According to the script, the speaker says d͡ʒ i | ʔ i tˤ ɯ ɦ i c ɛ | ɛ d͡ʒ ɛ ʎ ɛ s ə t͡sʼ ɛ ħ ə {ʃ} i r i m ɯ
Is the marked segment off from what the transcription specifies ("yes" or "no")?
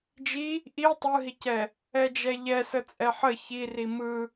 yes